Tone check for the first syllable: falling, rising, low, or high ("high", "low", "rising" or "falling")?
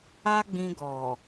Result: high